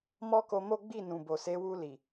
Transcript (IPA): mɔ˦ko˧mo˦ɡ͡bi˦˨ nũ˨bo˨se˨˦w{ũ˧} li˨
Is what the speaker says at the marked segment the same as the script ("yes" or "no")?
no